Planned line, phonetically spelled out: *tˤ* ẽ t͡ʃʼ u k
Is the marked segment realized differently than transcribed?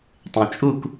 no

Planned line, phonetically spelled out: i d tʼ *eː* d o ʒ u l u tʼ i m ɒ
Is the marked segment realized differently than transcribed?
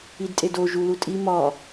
yes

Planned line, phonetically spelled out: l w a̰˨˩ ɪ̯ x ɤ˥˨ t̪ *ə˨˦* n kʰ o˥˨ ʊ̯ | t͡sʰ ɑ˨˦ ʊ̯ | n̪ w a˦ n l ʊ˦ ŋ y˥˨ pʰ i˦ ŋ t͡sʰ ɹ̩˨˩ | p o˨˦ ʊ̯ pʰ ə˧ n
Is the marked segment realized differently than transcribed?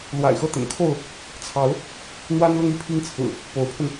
yes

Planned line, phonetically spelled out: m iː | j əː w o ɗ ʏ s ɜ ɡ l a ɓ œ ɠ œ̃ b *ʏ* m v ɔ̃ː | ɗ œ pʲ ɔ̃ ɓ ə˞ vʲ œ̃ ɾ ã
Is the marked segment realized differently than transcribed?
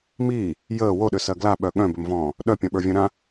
no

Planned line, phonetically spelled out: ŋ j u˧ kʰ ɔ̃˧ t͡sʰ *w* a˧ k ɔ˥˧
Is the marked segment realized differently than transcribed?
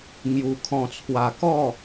no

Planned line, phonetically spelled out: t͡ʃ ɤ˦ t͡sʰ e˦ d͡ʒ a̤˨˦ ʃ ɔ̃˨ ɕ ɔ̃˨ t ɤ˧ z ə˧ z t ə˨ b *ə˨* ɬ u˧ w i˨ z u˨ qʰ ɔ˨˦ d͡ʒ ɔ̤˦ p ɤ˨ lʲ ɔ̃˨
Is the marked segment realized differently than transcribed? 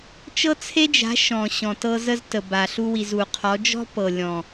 yes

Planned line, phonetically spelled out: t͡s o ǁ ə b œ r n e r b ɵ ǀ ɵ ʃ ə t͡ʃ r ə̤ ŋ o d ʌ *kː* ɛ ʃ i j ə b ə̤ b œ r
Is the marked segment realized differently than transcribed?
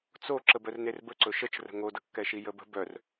no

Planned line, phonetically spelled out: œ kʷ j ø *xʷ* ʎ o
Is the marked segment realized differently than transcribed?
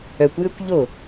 yes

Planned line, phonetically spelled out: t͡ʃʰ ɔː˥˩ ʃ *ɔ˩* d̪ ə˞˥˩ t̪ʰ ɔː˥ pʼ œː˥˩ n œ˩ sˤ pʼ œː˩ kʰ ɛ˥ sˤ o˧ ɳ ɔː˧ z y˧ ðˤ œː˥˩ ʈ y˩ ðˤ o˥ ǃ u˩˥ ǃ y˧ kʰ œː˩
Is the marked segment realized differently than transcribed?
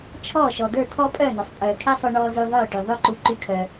no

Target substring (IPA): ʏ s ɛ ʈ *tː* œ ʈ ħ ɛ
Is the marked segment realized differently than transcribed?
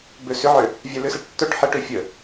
no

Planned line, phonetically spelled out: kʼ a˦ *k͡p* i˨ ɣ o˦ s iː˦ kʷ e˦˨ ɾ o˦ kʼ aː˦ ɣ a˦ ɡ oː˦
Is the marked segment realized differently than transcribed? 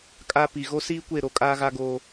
yes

